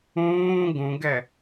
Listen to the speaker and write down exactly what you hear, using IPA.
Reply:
ũː ɡ ũ ɡ ɛ

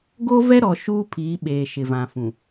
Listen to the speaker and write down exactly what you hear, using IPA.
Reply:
ɡ o˦ v ɛ˦ ɾ ɔ˨ ʃ uː˦ pʰ iː˨˦ ɓ eː˨ ʃ ɪ˨ v ã˨ f ũ˨

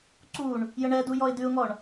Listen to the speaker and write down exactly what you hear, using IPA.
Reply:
ǀ u ɳ | j ə ɳ ɛ d u j ɔ ɪ̯ d ʉ ʊ̯ ŋ ɔ ɳ

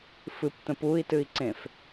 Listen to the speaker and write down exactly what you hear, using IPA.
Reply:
f ɨ p t̪ ə̃ p u i̯ t ɨ i̯ ǀ ẽ f

